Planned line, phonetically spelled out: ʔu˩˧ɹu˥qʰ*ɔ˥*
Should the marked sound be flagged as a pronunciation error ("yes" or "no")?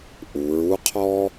no